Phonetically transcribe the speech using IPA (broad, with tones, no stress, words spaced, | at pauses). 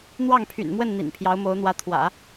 n̪wɑ˥˩ŋpʰy̰˨˩nmwə˥˩n n̪ḭ˨˩npʰjɑ˧˥ʊ̯mo˧˥ʊ̯n̪wä˧˥ t̪ʰwä̰˨˩˦